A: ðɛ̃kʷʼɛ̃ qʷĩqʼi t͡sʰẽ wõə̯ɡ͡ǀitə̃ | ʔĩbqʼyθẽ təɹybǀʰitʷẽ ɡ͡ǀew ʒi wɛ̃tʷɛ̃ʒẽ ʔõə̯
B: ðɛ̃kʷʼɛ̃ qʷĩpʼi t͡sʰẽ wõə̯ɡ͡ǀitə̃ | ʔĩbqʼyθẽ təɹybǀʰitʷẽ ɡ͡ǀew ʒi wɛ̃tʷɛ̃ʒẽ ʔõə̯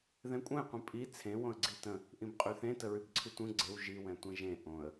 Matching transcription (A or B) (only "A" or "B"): B